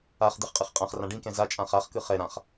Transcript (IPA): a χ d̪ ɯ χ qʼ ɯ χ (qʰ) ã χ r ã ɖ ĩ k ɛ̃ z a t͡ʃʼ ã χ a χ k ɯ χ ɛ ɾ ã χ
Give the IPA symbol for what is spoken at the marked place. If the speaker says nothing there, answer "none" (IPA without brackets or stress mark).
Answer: qʼ